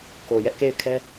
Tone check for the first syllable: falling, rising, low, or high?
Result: low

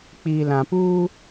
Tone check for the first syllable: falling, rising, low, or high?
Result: low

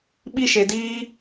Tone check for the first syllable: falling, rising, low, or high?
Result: high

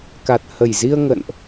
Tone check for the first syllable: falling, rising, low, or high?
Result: low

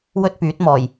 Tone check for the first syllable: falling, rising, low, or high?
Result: high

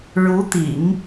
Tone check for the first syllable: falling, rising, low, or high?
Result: rising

